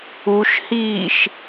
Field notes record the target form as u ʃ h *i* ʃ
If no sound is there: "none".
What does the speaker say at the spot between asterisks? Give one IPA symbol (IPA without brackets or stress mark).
iː